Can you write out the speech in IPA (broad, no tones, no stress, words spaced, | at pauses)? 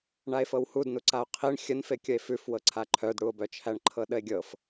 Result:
ɳae̯fɤwhudnu ǀao̯qʰiɳ xʲənfekʲəe̯ fʉfwɤǀʰa ǃʰœdɽuo̯bœ t͡ʃʰæɳǃʰɤɗəe̯ɡʲɤf